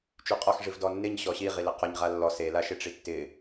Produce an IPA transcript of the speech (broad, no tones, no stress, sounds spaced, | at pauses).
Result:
t͡ʃ y qʼ ɔ x ʐ i v d ɔ nː ɪ ɲ ɕ ɔ ɕ i ʁ i l ɪ q ɔ ɲ ʁ a lː ɔ s e l a ʃ ɪ ʈ͡ʂ i tː ɪ